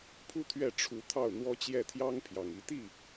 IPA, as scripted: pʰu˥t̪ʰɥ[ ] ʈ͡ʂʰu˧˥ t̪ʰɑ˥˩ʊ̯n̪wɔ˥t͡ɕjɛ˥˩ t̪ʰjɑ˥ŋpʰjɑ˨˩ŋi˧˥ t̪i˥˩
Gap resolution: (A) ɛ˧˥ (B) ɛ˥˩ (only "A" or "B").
B